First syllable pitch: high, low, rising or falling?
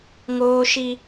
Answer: high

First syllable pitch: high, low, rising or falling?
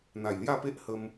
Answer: low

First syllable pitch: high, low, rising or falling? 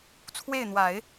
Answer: falling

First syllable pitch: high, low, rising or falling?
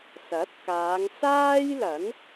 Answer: rising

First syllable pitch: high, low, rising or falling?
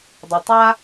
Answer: low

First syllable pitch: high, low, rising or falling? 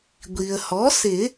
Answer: low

